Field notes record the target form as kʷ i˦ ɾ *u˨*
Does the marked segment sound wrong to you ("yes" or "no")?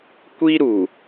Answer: no